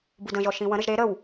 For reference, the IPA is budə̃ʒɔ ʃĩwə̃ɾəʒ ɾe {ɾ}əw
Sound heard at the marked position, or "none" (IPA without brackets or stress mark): ɾ